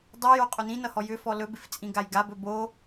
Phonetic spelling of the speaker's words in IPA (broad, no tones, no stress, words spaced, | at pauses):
dˤajo qʼɵnĩnʌhɔ jʏ fɔlɵbɪf t͡sʼĩɡajɡabɵ bo